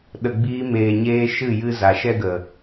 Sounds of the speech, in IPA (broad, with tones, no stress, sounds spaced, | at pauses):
ɗ ə˧ ɡ͡b iː˦ m eː˧ ɲ eː˦ ʃ ɨ˦˨ j ɨ˧ z a˨ ʃ ɛ˧ ɡ ə˨